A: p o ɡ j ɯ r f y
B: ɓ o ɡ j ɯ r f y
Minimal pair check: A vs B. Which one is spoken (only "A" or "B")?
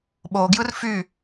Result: B